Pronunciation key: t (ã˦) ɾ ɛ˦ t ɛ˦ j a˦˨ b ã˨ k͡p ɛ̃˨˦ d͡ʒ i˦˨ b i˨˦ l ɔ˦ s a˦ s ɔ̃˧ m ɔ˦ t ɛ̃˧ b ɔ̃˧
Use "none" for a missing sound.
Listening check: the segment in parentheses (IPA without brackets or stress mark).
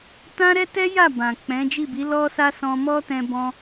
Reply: ã˦